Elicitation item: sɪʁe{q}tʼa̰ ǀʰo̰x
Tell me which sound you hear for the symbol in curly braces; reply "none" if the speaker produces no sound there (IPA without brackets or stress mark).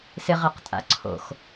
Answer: q